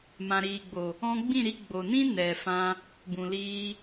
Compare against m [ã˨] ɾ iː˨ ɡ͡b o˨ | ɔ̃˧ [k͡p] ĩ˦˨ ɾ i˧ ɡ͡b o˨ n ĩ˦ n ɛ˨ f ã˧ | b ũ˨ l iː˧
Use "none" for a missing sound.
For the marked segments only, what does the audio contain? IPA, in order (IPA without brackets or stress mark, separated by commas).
ã˨, ɡ͡b